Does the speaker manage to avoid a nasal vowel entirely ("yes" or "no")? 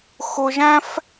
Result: no